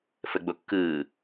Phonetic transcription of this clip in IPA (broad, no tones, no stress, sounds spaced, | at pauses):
f ə ɡ͡b o kː ɯː